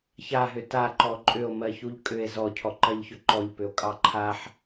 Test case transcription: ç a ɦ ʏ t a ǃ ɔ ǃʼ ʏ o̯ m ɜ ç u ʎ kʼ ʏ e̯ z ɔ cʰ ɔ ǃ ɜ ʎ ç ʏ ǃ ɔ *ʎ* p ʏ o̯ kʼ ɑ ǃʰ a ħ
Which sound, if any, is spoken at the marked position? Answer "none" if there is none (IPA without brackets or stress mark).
ʎ